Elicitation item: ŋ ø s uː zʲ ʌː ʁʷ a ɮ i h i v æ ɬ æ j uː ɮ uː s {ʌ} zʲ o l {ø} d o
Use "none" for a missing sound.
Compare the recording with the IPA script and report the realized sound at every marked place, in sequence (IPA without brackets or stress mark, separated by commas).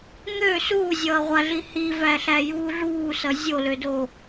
ʌ, ø